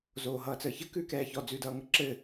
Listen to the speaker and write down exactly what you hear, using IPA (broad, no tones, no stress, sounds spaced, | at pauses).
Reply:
z oː ɦ ʌː t͡s əː ç ə k ʉː k ɛː ç ɔ d͡z ʉː d ʌː ŋ ə ǁ ɘ